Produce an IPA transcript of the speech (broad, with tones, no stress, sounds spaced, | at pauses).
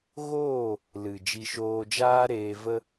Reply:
ɣ oː˦˨ | l ɨ˨ d͡ʒ i˧ ʃ oː˧ d͡ʒ aː˦ ɾ eː˧ v ə˦